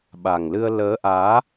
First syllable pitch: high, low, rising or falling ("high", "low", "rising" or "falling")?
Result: low